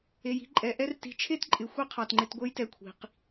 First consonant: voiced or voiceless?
voiced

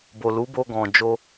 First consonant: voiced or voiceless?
voiced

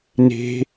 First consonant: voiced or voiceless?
voiced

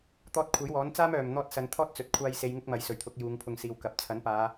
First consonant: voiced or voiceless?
voiceless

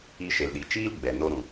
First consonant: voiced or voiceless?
voiceless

